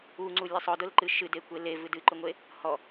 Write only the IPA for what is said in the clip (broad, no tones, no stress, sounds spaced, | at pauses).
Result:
u ŋ͡ǀ u lʲ e sˤ ʊ d ʊ l ǃ ɨ ʃ ɨ d e kʷ e l e v ɨ d ɨ ǃ ʊ ŋʷ e | h ɔ